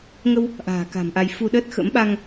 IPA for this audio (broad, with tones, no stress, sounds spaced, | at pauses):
ŋ ə˧ w | ʔ a̤ː˨˩ k a̤˨˩ m ʔ a˧ j f u˧ ɗ əː˦˥ t̚ x ə̰˧˥ m ɓ a˧ ŋ